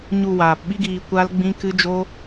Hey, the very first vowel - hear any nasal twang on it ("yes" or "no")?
no